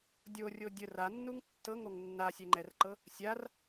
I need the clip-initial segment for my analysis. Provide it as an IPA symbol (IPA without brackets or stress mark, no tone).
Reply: dʲ